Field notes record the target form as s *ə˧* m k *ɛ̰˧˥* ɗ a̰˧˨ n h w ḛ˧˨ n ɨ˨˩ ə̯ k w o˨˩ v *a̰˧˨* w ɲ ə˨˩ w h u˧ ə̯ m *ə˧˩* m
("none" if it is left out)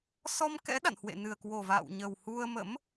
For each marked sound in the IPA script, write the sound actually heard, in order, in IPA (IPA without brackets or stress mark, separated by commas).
ɔ˧, ɛ̰˧˥, a̰ː˧˨, ə̰˧˥